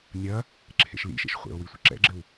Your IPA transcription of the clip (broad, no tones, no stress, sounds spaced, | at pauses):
nʲ ɐ | ǁʰ ḛ ʃ l ḭ ʃ ḛ ʃ χʷ ḛ o̯ w i sʷ ə ǁ ɛ̰ ɡ͡ǁ ɘ w